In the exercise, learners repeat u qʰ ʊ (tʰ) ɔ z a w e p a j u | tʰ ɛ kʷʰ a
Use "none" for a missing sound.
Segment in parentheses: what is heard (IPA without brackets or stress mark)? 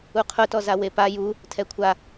t